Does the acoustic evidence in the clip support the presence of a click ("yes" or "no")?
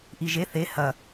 no